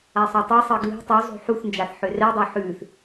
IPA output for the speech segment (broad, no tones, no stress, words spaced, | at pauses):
asˤotˤɛsˤɜ ɡli̤ tˤu zˤo̤ħuθnd͡ʒaθ ħørɛdˤo ħʉθ